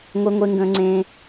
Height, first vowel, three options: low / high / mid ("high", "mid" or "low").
mid